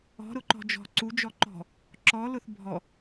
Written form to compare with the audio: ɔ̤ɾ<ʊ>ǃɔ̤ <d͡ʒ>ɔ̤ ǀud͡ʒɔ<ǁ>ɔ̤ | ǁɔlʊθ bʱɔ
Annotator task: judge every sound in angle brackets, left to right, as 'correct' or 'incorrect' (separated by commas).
correct, correct, incorrect